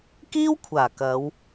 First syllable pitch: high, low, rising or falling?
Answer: high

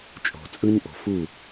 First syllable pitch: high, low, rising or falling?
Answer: low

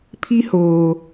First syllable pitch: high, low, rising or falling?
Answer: high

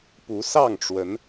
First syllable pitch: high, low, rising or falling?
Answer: rising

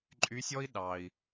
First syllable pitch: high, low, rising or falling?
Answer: rising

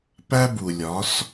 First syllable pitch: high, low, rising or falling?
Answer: high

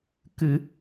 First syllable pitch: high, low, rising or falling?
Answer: low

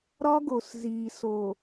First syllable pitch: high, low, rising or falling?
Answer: high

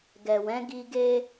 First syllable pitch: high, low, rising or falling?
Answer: low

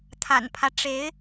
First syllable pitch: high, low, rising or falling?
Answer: low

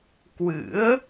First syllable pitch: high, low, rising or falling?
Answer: rising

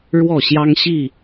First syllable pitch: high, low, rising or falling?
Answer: falling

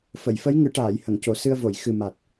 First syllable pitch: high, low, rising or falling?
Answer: low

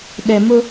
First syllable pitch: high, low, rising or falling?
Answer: low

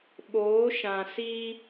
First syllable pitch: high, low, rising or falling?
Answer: rising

